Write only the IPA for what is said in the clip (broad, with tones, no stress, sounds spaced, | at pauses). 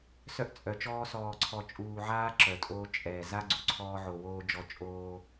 s œ˦ ʔ t͡sʼ œ˨ t͡ʃ ɔː˦ s ɔː˨ ǀʰ ɔ˨ t͡ʃʼ uː˨ ʕ aː˦ ǁ œ˨ tʼ oː˦ t͡ʃʼ ɛː˨ z a˦ ɡ͡ǀ u˨ ǀʰ ɔː˦ ʕ o˨ w oː˦ d͡ʒ ɔ˦ t͡ʃʼ oː˦